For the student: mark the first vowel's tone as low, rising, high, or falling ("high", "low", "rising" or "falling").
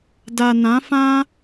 low